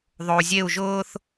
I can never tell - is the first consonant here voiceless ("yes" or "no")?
no